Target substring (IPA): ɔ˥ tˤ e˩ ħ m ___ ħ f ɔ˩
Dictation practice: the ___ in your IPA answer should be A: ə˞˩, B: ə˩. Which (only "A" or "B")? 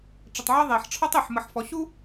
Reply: B